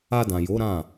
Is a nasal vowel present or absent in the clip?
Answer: present